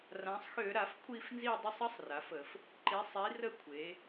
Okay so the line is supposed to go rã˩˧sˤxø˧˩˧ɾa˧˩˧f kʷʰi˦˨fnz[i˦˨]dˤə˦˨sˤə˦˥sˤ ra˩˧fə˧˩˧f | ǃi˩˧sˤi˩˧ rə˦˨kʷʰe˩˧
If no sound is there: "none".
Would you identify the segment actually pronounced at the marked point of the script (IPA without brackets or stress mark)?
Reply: i˦˨